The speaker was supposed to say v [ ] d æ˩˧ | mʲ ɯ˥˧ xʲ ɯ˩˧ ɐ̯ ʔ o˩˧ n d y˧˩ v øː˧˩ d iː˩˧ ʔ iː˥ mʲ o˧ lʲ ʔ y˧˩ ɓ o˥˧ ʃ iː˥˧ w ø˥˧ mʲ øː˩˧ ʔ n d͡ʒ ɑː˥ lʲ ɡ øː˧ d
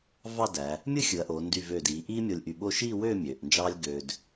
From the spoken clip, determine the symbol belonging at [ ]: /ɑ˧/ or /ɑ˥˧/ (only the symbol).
ɑ˥˧